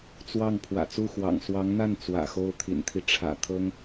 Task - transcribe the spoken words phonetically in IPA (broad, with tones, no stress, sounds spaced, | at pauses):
t͡s w ɑ˥˩ ŋ pʰ w ä̰˨˩ t͡s u˥˩ x w ɑ̰˨˩ ŋ s w ɑ˧˥ ŋ n̪ a˥˩ n t͡s w ä̰˨˩ x o˥˩ ʊ̯ t̪ʰ ḭ˨˩ n t̪ʰ i˦ ʈ͡ʂʰ ä̰˨˩ t̪ʰ ɤ˥ ŋ